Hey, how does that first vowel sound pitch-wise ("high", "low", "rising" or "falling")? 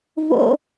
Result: low